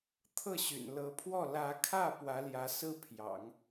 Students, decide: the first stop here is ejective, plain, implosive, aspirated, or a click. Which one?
aspirated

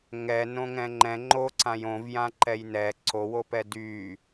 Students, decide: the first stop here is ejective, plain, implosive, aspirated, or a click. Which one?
click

